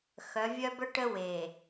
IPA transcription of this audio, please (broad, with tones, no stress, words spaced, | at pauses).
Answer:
xœ˨˦vʲœ˦bœ˦ ʈə˦we˨